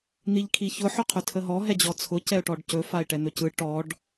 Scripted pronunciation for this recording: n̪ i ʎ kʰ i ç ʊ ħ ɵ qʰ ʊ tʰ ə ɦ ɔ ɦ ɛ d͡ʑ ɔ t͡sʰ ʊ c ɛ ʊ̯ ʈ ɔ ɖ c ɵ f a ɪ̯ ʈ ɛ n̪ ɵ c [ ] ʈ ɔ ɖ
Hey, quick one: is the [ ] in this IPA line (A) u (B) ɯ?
B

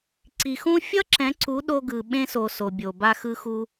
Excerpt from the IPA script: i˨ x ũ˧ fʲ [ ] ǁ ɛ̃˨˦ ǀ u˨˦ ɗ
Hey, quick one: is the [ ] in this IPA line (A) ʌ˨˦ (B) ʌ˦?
B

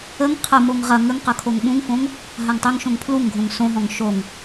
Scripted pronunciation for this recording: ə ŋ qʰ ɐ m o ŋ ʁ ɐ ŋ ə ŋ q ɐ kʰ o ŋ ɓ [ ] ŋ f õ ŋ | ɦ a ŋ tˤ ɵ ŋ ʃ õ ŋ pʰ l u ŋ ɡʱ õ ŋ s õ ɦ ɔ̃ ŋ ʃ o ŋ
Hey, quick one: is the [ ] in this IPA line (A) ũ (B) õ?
A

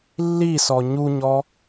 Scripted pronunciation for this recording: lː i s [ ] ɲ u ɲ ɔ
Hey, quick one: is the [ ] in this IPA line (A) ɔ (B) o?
A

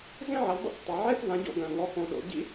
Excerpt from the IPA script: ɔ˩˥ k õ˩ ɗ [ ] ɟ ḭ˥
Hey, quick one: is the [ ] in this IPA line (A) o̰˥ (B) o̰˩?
B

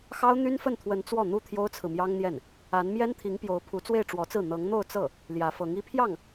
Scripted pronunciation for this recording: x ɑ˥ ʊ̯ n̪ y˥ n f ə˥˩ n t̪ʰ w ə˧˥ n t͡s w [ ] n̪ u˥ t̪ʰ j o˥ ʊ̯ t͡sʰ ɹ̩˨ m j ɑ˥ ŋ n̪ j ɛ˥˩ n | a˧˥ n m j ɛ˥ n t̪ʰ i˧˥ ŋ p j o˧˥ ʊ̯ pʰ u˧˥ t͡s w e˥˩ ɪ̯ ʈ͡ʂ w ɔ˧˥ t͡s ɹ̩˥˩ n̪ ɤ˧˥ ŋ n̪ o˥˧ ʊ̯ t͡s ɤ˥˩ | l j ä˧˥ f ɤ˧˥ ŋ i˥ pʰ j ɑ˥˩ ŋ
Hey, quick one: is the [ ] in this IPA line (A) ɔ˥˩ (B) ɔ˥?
A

